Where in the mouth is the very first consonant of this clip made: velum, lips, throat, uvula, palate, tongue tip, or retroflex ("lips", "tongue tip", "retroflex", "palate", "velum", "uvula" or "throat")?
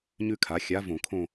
palate